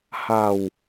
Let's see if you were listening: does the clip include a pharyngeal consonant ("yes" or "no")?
no